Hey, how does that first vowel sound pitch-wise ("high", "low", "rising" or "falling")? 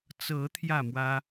rising